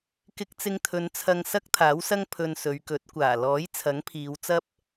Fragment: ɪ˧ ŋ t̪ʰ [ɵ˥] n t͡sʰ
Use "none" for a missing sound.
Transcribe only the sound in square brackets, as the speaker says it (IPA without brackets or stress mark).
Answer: ɵ˨˧